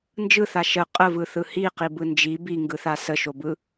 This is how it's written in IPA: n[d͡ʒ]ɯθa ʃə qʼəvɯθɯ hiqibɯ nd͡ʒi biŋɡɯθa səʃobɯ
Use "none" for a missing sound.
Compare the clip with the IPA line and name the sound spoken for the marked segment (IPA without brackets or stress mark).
d͡ʒ